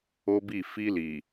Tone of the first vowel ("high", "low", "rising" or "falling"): high